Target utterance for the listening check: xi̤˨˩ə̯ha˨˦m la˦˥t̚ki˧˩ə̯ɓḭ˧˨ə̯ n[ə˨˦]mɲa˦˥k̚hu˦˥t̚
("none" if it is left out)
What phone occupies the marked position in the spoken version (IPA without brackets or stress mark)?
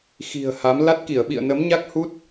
ə˨˦